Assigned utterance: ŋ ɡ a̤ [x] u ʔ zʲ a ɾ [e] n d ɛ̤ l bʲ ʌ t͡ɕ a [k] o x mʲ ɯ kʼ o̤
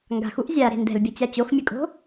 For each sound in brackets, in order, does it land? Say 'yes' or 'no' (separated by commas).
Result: yes, no, no